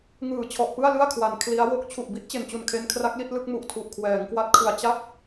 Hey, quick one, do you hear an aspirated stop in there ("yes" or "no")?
yes